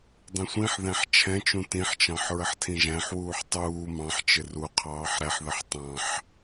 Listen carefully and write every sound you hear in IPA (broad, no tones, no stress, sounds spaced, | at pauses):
dˤ ĩ sʷ ĩ ħ ð æ̃ ħ t͡ʃʰ ɛ̃ t͡ʃ ũ t ĩ ħ t͡ʃ ɑ̃ ħ ɹ ə ħ tʰ ĩ ʒ æ̃ ħ w uː ħ tˤ uː m ɑ̃ ħ t͡ʃ ɪ r u qʰ ɑː ħ ɾ ɛ ħ ð ə ħ tˤ ɑ̃ ħ